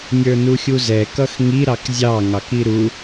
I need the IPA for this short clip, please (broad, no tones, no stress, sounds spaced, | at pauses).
nʲ ə˞ n u xʲ u z ɛ k ʌ x ŋ i ɾ ɑ k zʲ ɑ ŋ ɑ k i ɾ u